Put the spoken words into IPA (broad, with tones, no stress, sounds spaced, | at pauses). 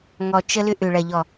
ŋ ɔ˨ t͡ʃ ə˦ l ʏ˦ ʔ ʏ˨ ɭ ɐ˨ ʎ ɔ˨